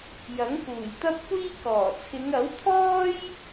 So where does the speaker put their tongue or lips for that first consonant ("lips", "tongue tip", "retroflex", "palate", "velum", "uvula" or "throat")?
palate